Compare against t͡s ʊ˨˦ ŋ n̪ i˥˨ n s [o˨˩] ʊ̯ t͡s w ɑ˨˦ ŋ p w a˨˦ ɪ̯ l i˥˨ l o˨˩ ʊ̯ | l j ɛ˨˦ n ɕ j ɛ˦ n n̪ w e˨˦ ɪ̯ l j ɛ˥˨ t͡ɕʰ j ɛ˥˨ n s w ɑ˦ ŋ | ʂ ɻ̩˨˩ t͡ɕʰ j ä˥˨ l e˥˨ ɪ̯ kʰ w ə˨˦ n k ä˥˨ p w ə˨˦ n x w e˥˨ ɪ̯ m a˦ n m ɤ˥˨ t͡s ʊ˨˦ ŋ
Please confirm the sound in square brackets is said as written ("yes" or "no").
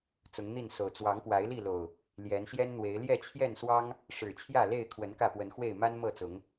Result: yes